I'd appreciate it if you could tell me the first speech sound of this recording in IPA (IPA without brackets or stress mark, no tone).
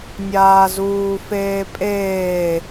nʲ